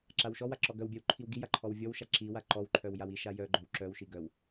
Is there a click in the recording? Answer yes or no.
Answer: yes